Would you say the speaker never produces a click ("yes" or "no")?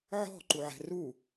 no